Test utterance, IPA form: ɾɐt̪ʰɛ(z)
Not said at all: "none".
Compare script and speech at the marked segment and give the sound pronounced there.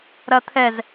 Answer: z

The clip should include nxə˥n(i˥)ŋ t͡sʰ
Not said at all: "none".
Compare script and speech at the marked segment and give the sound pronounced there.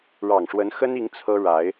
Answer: i˧˥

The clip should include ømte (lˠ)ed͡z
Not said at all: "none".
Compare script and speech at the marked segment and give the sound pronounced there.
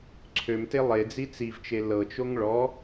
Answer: lˠ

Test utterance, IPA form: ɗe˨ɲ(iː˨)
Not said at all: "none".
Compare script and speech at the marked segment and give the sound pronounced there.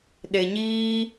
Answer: iː˦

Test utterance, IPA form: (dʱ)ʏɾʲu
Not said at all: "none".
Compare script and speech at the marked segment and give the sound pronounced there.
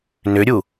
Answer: n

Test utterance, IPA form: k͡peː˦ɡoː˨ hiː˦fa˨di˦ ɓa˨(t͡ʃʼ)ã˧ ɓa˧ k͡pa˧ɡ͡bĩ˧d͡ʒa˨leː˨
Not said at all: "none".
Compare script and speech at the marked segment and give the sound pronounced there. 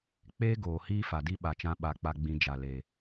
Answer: t͡ʃ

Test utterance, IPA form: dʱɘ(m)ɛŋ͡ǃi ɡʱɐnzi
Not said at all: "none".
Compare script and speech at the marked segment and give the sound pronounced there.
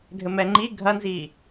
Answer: m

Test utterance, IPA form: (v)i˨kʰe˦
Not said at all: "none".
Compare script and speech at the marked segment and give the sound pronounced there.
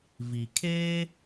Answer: v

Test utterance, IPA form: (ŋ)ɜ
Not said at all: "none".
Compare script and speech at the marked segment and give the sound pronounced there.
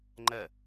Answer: ŋ͡ǃ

